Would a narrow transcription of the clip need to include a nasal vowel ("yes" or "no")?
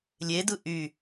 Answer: no